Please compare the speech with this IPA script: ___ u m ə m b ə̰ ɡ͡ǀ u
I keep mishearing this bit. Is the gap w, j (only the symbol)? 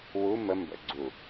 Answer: w